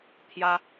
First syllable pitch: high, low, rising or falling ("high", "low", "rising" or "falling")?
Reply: high